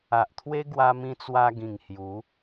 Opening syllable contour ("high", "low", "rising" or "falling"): low